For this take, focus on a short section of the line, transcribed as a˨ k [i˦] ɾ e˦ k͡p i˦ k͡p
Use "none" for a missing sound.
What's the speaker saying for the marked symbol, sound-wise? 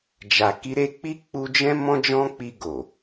i˧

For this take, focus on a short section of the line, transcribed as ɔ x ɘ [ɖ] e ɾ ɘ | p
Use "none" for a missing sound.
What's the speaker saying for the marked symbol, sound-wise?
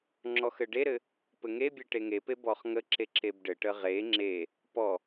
ɖ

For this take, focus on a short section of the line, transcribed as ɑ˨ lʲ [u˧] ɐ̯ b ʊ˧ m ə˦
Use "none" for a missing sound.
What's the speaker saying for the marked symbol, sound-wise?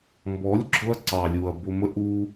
u˨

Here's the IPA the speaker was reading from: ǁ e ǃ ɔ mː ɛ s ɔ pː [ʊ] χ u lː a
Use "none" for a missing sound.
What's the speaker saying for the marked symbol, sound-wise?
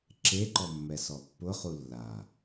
ʊ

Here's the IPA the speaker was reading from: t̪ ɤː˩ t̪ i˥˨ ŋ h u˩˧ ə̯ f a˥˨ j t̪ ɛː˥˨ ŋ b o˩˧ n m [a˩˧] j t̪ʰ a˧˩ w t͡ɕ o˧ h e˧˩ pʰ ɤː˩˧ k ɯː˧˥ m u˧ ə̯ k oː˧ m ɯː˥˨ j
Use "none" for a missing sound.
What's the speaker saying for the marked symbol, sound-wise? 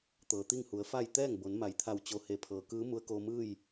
a˩˧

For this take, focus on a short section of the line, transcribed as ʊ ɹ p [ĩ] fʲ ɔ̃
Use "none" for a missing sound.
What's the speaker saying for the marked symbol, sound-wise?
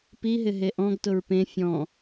ẽ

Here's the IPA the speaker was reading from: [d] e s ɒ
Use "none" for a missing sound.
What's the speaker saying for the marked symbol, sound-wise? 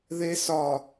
ð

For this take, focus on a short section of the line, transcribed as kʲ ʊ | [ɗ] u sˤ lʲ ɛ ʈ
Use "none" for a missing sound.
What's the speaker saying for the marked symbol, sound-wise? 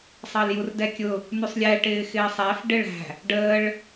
n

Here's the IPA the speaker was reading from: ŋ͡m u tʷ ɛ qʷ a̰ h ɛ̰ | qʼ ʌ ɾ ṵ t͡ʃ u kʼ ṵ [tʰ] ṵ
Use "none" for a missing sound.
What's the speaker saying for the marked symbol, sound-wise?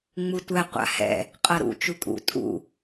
tʼ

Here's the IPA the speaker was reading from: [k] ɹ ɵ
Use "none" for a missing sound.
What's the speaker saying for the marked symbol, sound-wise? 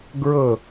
ɡ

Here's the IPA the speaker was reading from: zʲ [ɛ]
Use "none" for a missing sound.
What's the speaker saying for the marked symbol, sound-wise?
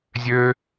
ø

